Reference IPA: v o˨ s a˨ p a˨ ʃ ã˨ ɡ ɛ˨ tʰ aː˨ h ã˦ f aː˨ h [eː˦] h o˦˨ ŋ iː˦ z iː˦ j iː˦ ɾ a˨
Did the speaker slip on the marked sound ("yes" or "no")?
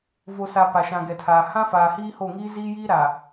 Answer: yes